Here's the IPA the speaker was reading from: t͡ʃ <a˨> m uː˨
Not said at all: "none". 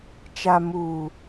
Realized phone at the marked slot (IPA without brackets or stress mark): a˨